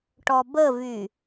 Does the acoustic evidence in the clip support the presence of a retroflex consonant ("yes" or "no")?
yes